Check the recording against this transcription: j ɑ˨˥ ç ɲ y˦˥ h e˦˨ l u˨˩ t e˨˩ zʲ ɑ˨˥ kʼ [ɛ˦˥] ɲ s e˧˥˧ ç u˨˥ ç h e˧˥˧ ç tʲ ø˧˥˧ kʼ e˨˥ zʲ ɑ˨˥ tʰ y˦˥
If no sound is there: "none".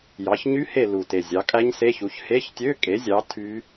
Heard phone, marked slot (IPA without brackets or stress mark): æ˦˥